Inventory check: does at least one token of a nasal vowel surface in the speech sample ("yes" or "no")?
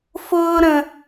yes